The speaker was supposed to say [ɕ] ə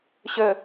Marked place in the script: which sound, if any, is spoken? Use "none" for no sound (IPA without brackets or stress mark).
ɕ